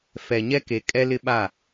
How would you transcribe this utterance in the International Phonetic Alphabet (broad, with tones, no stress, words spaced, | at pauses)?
fɛ˨ɲɛ˦ke˨ kʼɛ˦lɪ˦ɓa˦˨